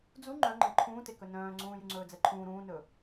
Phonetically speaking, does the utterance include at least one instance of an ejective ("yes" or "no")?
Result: no